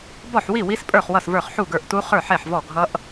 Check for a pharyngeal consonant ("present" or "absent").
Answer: present